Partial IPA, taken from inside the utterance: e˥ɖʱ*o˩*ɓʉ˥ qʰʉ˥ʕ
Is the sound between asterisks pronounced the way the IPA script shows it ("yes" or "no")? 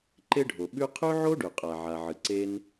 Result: yes